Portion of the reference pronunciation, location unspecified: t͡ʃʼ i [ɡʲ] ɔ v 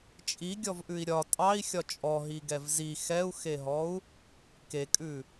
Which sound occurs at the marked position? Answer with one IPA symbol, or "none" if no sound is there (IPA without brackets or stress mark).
ɡʲ